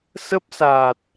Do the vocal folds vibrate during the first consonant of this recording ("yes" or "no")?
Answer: no